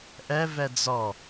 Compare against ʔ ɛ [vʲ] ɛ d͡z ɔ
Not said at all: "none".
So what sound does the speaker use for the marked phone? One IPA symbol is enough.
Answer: v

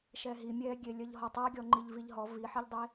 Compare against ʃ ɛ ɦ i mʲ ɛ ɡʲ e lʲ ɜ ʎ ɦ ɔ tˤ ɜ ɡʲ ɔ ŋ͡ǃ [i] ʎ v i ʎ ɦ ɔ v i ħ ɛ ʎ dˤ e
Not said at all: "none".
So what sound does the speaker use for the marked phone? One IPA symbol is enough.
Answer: i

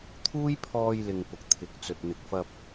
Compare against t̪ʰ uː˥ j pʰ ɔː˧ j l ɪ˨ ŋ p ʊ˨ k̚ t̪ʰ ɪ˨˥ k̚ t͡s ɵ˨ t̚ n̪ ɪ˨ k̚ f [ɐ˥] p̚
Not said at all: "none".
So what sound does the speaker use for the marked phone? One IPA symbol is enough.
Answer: ɐ˧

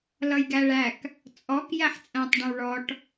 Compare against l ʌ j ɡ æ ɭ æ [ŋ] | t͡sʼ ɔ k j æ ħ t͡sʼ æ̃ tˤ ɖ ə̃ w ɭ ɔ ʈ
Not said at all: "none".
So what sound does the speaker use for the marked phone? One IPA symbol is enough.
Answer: k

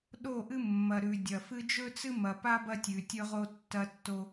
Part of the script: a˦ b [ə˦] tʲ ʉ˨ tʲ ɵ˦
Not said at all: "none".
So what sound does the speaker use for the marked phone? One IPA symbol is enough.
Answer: ɐ˦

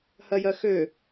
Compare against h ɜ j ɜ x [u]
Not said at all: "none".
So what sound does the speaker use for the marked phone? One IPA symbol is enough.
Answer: ø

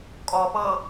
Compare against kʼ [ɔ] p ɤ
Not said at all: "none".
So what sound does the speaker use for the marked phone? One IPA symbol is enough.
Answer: ɔ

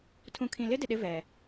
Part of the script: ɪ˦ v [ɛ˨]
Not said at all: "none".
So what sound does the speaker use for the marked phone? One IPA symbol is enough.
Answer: ɛ˨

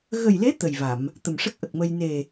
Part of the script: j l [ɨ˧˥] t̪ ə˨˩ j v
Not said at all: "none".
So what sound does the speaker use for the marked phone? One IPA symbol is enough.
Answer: e˧˥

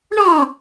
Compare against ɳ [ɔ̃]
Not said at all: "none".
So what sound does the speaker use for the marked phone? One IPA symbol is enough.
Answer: ɔ̃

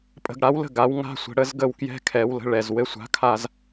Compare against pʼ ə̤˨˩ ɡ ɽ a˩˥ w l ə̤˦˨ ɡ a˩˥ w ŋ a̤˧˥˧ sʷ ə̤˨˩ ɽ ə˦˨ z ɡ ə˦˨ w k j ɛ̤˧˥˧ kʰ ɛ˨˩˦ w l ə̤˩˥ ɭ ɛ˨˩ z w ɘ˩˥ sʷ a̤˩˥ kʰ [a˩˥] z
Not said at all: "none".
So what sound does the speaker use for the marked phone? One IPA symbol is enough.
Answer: a˦˨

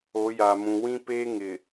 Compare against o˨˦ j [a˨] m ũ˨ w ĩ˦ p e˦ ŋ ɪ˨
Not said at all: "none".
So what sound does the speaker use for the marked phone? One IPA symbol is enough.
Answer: a˨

